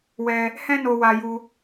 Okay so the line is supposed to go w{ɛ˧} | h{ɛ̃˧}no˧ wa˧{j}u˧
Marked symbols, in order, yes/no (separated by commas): yes, no, yes